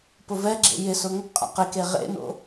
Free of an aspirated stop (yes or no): yes